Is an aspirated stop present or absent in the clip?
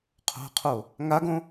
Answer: present